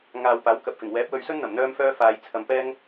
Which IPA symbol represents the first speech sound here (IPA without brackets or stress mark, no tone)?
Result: ŋ